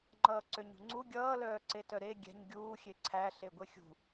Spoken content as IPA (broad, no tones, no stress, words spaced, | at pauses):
ŋ͡ǃʌːǀøɲṳŋ͡ǀu ɡʲʌː lœːǀetœɾe ɡʲɛ̤ɲ ɡʲuː xʲeǀʰæ ɬeɡʷexʲṳ